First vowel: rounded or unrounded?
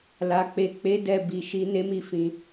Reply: unrounded